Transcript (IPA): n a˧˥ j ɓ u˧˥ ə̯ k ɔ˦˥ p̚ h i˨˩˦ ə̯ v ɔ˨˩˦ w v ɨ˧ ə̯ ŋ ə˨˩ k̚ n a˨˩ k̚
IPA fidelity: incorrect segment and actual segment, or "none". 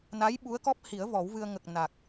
none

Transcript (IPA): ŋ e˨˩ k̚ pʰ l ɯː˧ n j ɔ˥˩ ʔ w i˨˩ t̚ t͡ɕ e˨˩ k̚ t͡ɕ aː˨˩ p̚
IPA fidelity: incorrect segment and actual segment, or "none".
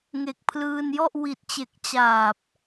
none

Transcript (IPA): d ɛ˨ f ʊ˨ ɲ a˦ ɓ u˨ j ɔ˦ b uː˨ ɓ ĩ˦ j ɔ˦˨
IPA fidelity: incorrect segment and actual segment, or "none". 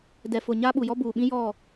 none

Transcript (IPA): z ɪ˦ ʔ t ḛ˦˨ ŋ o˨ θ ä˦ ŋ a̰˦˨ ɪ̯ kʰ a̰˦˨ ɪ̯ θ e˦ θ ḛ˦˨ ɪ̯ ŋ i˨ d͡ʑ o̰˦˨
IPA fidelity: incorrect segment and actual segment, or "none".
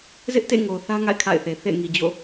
e˦ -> e˨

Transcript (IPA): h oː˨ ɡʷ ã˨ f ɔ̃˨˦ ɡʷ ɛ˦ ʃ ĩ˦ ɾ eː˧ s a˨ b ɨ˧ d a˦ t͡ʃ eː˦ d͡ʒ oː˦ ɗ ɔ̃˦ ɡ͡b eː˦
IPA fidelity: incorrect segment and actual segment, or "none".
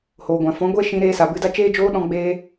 none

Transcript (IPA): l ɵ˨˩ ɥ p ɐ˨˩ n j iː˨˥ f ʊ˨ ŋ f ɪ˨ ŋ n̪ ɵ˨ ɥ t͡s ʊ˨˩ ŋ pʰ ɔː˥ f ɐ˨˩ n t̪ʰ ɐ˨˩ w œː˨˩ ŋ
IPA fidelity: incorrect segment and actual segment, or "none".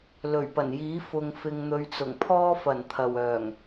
none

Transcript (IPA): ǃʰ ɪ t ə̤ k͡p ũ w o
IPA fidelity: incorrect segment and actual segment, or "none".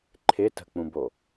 w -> b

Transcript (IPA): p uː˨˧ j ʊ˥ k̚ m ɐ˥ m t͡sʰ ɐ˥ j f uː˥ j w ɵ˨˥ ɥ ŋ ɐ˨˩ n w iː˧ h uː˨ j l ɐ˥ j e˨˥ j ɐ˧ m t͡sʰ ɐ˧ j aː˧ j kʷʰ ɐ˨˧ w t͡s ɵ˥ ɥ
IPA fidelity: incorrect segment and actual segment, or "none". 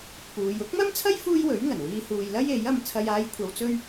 none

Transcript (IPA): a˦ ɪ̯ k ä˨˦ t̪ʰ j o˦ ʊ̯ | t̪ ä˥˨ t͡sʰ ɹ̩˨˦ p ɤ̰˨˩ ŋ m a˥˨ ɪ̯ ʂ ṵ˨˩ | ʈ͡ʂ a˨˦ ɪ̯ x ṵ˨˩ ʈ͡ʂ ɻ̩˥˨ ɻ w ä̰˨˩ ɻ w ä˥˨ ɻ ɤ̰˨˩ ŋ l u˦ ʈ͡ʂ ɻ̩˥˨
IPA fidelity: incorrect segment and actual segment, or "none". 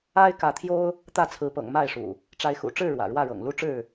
none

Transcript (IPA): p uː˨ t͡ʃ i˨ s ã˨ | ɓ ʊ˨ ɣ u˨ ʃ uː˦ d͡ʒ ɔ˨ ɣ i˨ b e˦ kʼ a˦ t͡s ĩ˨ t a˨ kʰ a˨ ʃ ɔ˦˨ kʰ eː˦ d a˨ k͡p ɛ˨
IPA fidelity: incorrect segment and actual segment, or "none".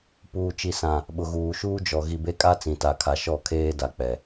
u˨ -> uː˨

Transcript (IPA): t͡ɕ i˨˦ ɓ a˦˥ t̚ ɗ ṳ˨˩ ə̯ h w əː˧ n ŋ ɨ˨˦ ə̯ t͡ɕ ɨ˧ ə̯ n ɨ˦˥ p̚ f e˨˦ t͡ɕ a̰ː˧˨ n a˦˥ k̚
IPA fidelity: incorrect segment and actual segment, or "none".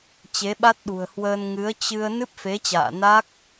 i˨˦ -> e˨˦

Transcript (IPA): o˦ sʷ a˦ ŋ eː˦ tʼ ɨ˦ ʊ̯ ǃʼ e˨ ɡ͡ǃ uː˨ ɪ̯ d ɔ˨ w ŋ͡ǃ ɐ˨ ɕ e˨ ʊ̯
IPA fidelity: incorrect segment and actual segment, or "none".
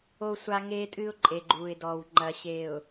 none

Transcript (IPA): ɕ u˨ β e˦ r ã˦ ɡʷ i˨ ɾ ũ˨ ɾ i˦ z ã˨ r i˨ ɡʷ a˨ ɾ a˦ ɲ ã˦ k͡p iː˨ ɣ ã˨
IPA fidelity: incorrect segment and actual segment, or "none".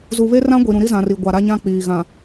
ɕ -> z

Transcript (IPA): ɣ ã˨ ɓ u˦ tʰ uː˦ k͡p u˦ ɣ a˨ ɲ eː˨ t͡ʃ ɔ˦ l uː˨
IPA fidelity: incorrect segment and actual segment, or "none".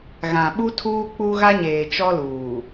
a˨ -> a˦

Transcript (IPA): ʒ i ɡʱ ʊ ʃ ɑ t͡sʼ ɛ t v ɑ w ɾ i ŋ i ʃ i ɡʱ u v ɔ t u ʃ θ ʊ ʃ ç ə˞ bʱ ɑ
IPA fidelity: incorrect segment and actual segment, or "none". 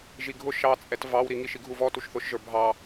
ç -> ʒ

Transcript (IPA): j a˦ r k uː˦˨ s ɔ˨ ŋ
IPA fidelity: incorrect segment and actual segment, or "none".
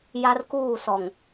none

